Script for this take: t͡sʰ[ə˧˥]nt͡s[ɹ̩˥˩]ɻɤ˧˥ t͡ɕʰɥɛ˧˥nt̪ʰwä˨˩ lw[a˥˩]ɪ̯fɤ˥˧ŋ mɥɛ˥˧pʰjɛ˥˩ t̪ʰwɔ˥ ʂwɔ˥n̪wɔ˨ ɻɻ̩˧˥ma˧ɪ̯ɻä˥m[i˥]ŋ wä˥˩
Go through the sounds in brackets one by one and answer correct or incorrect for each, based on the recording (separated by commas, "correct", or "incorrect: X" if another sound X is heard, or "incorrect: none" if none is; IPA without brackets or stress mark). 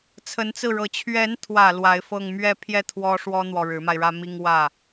correct, correct, incorrect: a˧˥, correct